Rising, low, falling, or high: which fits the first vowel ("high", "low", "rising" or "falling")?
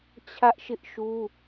high